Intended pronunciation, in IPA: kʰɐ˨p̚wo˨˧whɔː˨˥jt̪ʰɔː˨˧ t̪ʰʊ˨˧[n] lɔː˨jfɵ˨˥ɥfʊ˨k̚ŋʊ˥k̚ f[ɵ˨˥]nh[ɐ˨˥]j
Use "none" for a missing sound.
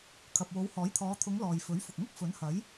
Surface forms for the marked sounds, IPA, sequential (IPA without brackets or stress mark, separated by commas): ŋ, ɵ˨˥, ɐ˨˥